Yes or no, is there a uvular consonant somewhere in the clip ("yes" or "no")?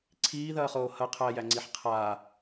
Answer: yes